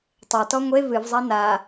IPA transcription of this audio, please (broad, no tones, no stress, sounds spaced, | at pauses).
tˤ ɛ t ɔ ŋʷ e v ɨ v zˤ a n a